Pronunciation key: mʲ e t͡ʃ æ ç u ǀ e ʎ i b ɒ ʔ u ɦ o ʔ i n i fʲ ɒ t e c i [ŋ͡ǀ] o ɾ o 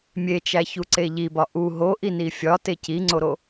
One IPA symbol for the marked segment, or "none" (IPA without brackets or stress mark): ŋ͡ǀ